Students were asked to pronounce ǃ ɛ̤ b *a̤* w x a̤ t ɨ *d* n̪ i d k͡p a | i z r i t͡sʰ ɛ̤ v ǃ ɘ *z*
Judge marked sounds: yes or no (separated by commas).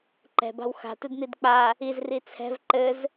yes, yes, yes